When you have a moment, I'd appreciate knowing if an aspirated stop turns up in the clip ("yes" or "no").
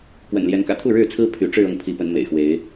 yes